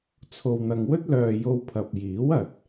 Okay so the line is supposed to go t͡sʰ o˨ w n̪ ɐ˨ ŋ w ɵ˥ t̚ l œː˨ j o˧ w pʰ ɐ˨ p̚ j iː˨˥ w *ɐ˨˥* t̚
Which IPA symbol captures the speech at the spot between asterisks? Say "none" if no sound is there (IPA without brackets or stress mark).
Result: ɐ˨